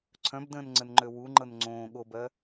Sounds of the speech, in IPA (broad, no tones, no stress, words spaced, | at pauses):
ǀʰœ̃bdə̃ːn ŋ͡ǀənŋ͡ǃøwuŋ͡ǃɤn ŋ͡ǀõː ɠobɜ